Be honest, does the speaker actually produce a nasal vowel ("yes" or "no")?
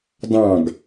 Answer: yes